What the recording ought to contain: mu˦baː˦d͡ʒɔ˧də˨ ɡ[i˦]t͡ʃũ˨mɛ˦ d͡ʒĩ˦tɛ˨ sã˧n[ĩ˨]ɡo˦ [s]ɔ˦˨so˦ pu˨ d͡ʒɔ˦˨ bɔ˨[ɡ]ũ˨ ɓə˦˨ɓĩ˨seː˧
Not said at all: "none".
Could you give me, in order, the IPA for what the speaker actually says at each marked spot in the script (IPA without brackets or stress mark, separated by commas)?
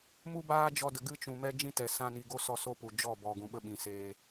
ɨ˦, i˨, s, ɡ